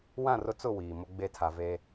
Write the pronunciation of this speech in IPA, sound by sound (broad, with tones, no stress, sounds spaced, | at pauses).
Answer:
w ã˦˨ r ʊ˦ t͡s ʊ˦˨ w iː˨ m ʊ˦ ɡ͡b e˦ tʰ a˨ v e˦